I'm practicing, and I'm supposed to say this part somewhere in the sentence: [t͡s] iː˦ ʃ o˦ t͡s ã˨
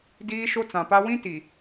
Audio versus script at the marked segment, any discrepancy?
yes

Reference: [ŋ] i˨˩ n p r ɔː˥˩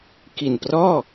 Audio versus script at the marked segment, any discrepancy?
yes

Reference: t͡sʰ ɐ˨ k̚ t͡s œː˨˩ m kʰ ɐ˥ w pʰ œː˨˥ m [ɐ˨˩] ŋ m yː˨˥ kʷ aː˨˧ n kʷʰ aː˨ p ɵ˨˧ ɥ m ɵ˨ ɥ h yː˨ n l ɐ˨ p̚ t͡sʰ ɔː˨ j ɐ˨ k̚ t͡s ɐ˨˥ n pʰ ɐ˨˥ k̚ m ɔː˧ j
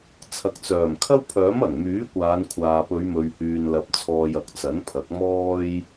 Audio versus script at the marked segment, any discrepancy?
no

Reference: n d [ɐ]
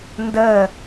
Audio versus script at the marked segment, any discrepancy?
yes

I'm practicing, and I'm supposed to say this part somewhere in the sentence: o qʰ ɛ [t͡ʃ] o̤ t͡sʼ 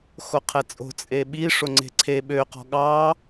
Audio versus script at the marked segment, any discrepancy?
yes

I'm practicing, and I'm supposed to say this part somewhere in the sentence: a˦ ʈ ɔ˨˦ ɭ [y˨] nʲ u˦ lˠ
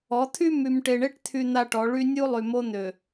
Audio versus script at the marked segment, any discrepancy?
yes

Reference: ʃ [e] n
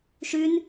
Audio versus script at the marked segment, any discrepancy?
yes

